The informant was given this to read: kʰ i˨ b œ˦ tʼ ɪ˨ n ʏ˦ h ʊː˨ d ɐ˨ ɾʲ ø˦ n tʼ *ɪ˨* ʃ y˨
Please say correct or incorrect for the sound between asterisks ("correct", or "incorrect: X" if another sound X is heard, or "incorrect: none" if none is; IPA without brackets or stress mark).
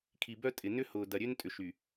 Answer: incorrect: ʏ˨